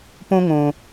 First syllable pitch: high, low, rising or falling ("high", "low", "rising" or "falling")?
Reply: high